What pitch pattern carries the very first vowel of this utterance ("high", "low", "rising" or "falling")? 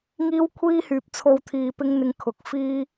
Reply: high